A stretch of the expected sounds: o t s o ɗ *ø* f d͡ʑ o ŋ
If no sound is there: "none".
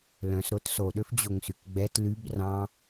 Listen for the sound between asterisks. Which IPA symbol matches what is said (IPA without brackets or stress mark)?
ø